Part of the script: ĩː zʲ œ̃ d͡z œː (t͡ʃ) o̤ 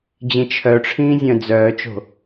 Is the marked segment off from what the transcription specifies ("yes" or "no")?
no